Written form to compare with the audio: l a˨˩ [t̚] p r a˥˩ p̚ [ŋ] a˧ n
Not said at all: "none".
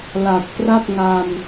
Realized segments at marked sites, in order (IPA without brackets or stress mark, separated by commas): t̚, ŋ